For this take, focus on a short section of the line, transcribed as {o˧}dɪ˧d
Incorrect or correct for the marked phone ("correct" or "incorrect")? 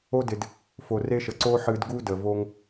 incorrect